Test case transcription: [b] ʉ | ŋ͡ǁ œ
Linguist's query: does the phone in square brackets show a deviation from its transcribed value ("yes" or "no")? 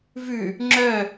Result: yes